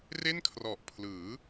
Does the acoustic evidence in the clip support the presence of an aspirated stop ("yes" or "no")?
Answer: yes